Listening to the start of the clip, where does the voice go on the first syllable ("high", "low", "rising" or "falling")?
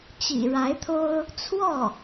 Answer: low